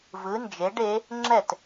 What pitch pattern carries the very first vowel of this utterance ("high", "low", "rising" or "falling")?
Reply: rising